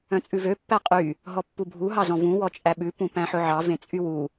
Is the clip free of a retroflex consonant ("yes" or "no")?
yes